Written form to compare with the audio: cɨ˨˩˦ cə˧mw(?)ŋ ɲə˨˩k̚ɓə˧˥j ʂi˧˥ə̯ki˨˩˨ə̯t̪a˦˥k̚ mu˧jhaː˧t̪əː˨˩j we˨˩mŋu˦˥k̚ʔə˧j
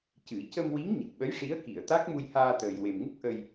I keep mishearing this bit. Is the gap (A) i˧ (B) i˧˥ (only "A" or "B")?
B